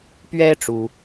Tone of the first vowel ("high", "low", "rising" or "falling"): high